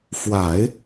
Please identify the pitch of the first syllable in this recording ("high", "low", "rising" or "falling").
low